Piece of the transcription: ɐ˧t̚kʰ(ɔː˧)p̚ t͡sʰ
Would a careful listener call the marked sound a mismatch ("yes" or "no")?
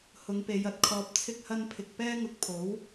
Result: no